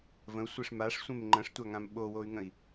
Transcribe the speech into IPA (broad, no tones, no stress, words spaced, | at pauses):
və̃u̯sʷeʂ maʂsʷẽm ŋ͡ǃə̃ʂtʷaŋãm ɓowoy̯ŋə̃i̯